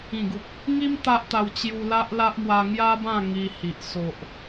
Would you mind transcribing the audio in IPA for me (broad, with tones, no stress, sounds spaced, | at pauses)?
ĩ˨˩ ɡ u˨ k̚ | ŋ i˦ m t̪ a˦ ʔ t̪ a˧ w t͡ɕ j u˧ l a˦ ʔ l a˦ ʔ m w a˧ ŋ j a˦ b ã˥˧ ŋ i˧ h i˨ ʔ s o˨ ʔ